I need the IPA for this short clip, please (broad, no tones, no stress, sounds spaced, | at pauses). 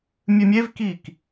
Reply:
mʲ ɨ mʲ e v k iː k